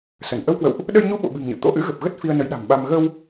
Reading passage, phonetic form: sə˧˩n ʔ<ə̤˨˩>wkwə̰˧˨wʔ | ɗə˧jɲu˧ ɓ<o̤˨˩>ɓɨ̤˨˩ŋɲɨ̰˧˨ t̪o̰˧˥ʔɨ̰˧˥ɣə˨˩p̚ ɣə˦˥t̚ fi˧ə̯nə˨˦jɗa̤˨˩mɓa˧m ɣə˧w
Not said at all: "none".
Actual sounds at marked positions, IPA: ə˧, o̰˧˨

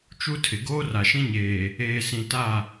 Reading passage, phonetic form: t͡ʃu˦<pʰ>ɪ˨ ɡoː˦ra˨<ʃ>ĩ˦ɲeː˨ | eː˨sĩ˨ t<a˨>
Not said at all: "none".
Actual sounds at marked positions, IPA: tʰ, ʃ, a˦˨

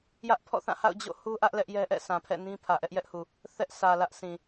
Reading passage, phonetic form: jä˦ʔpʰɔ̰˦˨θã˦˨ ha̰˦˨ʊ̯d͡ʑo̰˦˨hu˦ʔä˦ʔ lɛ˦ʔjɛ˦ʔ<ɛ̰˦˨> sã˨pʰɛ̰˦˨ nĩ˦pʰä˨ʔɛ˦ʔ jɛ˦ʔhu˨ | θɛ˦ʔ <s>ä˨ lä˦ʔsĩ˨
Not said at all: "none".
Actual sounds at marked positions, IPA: ɛ̰˦˨, s

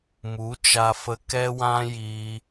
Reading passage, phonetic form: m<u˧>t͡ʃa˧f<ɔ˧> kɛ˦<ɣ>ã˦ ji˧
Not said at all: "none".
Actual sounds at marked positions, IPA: u˨˦, ə˧, w

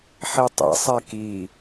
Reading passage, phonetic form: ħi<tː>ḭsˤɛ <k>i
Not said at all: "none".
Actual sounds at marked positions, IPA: tˤ, k

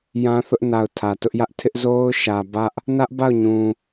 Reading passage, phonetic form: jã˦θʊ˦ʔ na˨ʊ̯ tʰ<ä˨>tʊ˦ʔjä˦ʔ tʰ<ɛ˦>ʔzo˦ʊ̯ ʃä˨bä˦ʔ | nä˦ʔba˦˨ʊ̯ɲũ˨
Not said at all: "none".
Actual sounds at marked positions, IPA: ä˨, ɪ˦

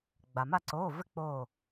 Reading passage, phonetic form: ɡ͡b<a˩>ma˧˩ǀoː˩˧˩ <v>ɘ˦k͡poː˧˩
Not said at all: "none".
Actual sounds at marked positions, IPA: a˩, v

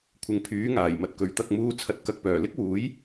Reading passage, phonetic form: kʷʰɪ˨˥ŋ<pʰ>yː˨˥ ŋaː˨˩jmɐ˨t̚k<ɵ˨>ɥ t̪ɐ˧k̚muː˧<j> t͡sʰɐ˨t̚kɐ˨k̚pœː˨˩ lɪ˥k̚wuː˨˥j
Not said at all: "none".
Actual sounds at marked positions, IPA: pʰ, ɵ˨˥, none

